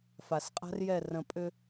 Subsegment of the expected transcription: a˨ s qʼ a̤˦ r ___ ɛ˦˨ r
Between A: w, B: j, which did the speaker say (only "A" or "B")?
B